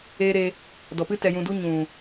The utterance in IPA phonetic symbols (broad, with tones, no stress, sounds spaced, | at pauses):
eː˧ ɾ e˧ | d ɔ˨ p ɨ˦ t ɛ˧ j ũ˧ d u˦ ɲ ũ˨